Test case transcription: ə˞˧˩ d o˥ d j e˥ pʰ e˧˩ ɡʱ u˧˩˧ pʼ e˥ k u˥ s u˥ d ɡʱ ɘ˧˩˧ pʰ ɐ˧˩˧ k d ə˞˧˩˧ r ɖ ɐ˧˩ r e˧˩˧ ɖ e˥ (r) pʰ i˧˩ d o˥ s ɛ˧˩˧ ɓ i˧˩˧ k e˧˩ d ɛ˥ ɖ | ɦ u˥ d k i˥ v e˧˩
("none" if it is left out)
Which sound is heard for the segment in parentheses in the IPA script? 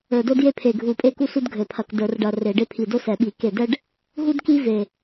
none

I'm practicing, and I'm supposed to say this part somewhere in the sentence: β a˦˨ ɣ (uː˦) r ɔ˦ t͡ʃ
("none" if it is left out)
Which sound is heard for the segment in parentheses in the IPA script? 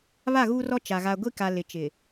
uː˦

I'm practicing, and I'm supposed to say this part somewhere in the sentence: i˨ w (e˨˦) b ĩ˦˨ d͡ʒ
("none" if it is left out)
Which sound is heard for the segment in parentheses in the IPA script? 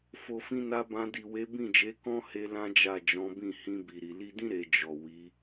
e˨˦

